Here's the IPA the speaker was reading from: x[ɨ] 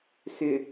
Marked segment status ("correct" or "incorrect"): incorrect